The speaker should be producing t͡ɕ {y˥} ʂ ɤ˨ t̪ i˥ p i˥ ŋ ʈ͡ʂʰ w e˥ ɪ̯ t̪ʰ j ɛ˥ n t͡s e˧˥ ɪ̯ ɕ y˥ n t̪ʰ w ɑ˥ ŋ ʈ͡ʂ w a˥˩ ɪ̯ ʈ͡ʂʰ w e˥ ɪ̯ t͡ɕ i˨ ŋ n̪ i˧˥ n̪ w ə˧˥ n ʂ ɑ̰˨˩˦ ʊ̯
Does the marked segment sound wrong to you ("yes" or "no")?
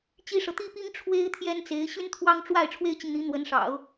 yes